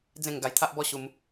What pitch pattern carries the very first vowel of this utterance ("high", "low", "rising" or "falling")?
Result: falling